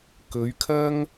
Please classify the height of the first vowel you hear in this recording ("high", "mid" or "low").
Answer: mid